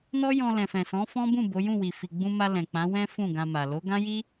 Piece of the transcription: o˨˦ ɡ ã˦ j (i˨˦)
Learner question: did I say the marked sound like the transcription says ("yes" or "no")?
no